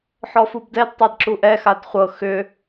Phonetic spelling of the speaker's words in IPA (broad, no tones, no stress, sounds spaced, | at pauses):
ħ ɔ f u b d ɛ d tˤ a d ǁ u ʔ ɛ x a d χʷ ɤ x ʏ